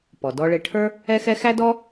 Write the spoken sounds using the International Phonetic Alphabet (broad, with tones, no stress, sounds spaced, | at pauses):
p ɔ˩ d ɔ˧ ɭ ɪ˧ ʈʰ ə˞˥ | ɛ˥ x ɛ˥ x æ˥ d ɔ˥